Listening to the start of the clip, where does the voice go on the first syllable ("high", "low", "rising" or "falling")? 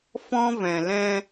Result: high